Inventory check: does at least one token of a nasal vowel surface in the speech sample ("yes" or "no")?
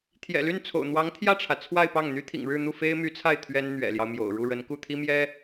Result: no